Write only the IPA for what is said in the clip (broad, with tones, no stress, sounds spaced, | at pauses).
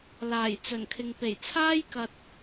l aː˨˩ j t͡s ɵ˨˩ n kʰ ɪ˨ ŋ p e˨˩ j t͡sʰ aː˥ j k ɐ˨ t̚